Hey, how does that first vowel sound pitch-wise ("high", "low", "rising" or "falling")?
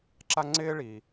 high